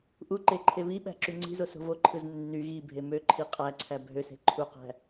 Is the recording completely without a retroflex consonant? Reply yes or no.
yes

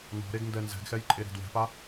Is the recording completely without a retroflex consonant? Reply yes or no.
yes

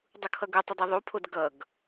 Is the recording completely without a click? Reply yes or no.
yes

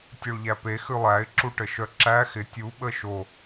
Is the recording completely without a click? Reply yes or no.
no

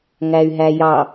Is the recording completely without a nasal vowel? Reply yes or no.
yes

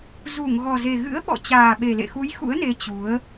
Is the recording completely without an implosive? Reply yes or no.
no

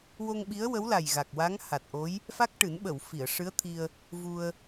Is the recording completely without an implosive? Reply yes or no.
no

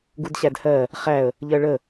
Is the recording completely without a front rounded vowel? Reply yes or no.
yes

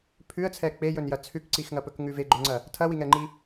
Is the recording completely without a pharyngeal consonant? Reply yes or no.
yes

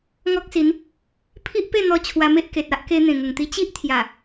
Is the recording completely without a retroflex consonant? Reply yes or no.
yes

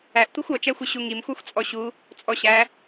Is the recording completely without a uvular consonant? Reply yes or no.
yes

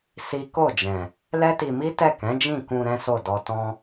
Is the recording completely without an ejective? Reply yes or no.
yes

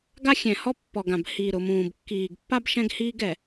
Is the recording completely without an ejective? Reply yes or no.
yes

